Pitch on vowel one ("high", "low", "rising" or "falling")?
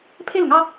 falling